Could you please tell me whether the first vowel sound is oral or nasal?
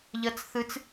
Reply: oral